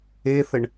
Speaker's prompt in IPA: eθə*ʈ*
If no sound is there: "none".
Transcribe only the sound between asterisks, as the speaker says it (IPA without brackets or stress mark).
ɳ